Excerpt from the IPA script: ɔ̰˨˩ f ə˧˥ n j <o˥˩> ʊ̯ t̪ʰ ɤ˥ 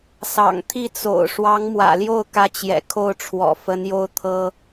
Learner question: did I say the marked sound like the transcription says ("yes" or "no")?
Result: yes